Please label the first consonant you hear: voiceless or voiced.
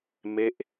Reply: voiced